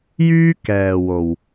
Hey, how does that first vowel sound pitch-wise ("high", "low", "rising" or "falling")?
high